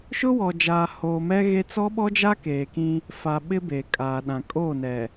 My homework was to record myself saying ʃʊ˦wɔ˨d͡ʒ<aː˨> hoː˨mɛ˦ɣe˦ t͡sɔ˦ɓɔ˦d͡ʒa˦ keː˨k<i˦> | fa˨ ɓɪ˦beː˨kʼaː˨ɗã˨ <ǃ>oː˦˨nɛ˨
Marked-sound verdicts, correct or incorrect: correct, incorrect: ĩ˦, incorrect: kʼ

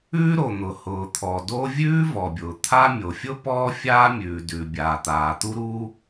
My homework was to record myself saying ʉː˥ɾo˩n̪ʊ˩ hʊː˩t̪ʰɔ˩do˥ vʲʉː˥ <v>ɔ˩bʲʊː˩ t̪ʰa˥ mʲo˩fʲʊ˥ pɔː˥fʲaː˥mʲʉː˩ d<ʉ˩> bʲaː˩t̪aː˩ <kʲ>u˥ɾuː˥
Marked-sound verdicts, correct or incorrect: correct, correct, incorrect: t̪

